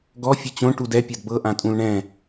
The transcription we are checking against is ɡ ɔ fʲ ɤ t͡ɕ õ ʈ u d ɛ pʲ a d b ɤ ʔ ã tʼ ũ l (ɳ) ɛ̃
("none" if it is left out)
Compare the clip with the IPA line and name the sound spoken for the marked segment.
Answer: ɳ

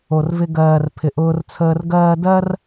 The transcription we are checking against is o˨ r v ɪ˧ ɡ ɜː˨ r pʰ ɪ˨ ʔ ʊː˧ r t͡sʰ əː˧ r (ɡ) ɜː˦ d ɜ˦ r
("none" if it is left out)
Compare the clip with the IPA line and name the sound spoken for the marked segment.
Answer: ɡ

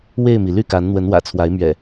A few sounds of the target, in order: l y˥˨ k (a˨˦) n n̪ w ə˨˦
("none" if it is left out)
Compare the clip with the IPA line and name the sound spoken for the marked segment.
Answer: a˨˦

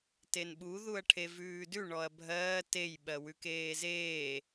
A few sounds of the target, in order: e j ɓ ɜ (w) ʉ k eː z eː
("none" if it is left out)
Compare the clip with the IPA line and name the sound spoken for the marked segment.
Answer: w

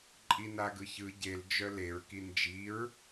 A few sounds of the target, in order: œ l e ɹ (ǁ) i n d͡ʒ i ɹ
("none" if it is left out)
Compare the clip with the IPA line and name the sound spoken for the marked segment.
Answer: k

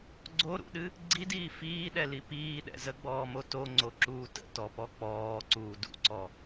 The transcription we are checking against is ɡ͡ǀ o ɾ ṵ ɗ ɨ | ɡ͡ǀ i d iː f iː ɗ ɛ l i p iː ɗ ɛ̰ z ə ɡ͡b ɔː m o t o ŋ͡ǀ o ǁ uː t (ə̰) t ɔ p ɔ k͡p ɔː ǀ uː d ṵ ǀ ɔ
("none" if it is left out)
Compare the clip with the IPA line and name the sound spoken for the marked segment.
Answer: ə̰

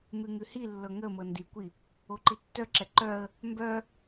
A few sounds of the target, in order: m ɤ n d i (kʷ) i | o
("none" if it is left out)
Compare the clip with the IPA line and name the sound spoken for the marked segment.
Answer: kʷ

